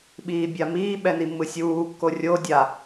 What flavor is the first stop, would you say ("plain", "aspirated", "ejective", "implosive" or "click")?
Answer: implosive